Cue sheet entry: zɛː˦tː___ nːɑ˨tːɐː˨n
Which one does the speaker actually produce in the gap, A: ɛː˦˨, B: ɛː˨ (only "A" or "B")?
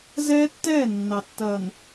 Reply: A